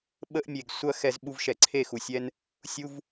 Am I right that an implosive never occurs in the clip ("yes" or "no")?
no